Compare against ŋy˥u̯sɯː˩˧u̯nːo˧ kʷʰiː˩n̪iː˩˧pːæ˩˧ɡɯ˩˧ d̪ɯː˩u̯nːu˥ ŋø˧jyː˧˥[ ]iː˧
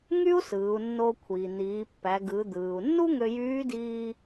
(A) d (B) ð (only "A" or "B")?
A